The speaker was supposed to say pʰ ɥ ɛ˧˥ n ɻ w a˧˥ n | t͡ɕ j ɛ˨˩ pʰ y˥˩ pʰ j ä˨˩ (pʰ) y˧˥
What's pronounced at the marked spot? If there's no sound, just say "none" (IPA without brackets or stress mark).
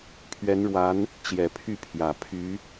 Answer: pʰ